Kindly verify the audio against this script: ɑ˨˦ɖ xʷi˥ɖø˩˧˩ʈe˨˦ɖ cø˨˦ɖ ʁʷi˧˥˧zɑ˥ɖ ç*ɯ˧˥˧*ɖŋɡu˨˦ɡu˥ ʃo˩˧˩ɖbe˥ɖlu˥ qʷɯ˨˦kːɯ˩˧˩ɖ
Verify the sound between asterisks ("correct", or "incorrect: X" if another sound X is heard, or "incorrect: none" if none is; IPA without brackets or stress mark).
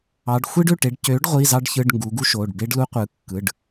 correct